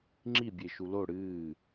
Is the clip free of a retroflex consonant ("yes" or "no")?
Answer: no